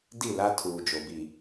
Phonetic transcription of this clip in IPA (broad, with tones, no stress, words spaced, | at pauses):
di˦˨la˦tʰuː˨ d͡ʒo˨bi˨